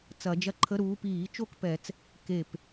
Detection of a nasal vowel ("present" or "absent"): absent